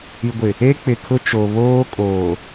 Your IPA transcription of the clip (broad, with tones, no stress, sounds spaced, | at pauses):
i˨ ɡʷ ɪ˨ | e˦ k͡p ɪ˨ kʰ ʊ˦ t͡ʃ o˨ β oː˦ kʼ oː˨